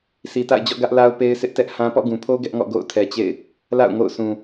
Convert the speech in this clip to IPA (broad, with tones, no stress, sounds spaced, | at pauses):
sʰ i˨ t a̰˦˨ ɪ̯ d͡ʑ ɔ̰˦˨ ɡ ä˦ ʔ l a˦ ʊ̯ p e˦ ɪ̯ sʰ ɪ˦ ʔ t ɛ˦ ʔ h ã˦ p ɔ̰˦˨ ɡ ũ˨ pʰ o˦ ɡ ɛ˦ ʔ ŋ ɔ̰˦˨ ɡ o̰˦˨ ʊ̯ tʰ ɛ˨ t͡ɕ ḛ˦˨ ɪ̯ | l a̰˦˨ ʊ̯ ŋ o̰˦˨ ʊ̯ s ũ˨